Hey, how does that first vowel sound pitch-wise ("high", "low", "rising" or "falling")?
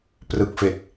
low